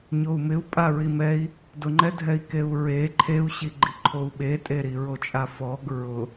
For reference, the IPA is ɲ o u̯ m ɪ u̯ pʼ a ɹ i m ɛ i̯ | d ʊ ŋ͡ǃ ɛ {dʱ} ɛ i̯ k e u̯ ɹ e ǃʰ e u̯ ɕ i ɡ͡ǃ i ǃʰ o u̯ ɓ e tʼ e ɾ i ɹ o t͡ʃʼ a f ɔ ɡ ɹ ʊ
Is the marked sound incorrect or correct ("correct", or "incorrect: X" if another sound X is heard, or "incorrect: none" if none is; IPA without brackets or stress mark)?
correct